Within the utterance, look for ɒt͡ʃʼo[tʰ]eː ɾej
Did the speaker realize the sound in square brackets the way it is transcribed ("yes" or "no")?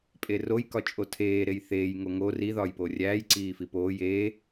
yes